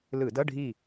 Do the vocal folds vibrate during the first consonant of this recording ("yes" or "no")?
yes